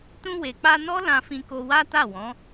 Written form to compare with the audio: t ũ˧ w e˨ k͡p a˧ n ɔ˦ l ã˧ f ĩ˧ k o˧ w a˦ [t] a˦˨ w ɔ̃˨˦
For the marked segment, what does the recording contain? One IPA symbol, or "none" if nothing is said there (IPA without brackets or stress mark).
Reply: t